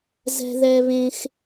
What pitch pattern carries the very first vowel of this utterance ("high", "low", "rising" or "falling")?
high